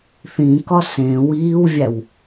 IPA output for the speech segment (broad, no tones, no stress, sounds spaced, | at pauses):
θ ĩ k ɒ s ẽ w iː w vʲ æ w